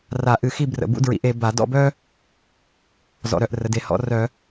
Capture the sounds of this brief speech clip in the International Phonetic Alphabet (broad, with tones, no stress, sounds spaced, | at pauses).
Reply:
r a˧˩˧ ʔ ɨ˧˩˧ x i˥˧ b r ə̰˧˩ b ṵ˥ d ɹ ḭ˨˥ ʔ e˩˧ b a˧˩˧ d ɔ̰˥˧ b œ˥ | z ɔ̰˩˧ ɾ œ˧˩ ʔ r ə˩˧ d e˧˩˧ h ɔ̰˨˥ r œ˧˩˧